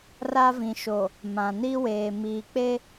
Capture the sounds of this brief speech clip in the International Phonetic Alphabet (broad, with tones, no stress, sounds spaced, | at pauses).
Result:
r a˦ v ĩ˨ ʃ o˨ | m ã˨ n i˦ w eː˨ m iː˨ k͡p e˦